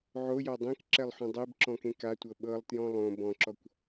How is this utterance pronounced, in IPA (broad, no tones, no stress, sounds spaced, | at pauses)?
ʕ o j ɔ dˤ ẽ k ǁ ɛ lˠ ħ õ dˤ e b ǁ ɔ̃ k ẽ k a tʷ ɤ ɓ ɤ lˠ t j ɔ̃ lˠ õ b ɔ̃ ǁ ɔ kʷ